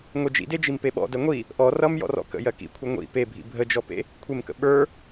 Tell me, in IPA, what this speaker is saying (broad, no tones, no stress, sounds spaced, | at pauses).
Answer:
ŋʷ e d͡ʒ ḭ d e d͡ʒ i m p e ɓ ɔ̰ d ɜ ŋʷ i | ʔ ɔ r ʌ m j ɔ̰ r ɔ̰ k ə̰ j ɜ k ḭ kʷʰ ʌ ŋʷ ḭ p e bʱ ḭ bʱ ə d͡ʒ ɔ p ḛ | kʷʰ e m k ə̰ ɓ ə˞